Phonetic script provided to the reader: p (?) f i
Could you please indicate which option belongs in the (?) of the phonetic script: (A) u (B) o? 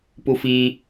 A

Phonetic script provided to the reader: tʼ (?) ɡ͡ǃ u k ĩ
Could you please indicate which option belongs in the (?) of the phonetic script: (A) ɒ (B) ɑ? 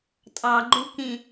B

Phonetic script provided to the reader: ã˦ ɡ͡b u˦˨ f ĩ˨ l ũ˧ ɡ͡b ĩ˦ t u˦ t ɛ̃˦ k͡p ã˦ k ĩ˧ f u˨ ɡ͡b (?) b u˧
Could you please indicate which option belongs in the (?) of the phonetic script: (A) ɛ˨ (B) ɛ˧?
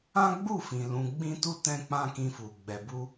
A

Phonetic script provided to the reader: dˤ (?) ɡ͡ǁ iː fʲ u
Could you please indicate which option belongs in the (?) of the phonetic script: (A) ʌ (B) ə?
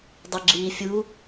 B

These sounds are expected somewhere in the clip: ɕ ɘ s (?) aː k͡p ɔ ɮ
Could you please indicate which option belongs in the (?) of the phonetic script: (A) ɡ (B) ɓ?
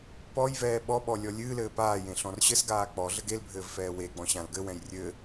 A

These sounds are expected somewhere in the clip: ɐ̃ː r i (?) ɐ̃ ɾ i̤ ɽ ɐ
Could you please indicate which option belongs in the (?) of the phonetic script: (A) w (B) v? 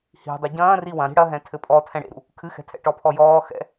A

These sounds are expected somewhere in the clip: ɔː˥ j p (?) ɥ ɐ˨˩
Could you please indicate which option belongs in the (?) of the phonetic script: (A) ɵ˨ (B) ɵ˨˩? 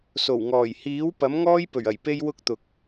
B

